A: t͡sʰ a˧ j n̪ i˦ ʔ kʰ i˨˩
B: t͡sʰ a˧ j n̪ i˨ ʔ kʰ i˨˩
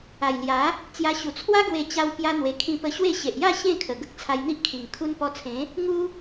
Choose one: A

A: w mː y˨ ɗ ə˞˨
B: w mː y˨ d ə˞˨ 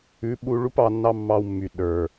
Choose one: A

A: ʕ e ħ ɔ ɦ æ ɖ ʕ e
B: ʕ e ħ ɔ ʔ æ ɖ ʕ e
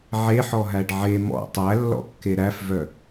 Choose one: A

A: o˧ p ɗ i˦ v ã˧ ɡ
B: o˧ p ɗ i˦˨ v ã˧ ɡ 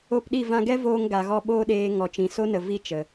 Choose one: B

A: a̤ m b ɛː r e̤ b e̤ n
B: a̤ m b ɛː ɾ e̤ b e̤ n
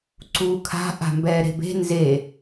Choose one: B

